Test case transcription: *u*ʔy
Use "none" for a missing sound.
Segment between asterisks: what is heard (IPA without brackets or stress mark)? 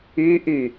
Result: y